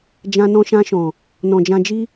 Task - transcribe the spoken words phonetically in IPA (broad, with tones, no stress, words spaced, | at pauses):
d͡ʒã˧nɔ̃˧ ʃã˧ʃɔ̃˨ | nɔ̃˨d͡ʒã˧d͡ʒi˦